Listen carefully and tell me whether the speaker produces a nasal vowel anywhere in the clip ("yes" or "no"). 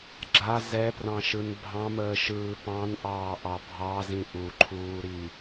yes